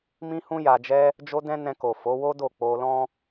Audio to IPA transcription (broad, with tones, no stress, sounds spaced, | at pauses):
m ĩ˦ h ũ˦ j a˧ d͡ʒ ɛ˦ | d͡ʒ o˦ d ɛ̃˦ n ɛ̃˧ k o˨ f o˨˦ w o˦ d o˦˨ k͡p o˧ l ɔ̃˦